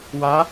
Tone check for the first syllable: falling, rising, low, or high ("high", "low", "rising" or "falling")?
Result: rising